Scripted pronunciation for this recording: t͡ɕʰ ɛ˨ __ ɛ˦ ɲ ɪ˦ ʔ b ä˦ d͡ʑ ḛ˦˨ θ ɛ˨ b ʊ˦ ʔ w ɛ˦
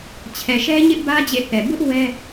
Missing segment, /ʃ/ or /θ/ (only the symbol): ʃ